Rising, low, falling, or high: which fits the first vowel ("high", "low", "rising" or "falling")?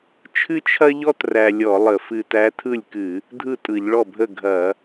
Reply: high